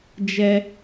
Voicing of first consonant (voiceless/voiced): voiced